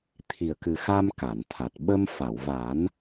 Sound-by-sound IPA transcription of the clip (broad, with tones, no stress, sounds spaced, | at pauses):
t̪ʰ i˨˩ ə̯ k ɨ˨˩ x a˧ m k a˨˩˨ n t̪ʰ a˨˩ t̚ ɓ ə˧ m f a˨˩˨ w v a˨˩˦ n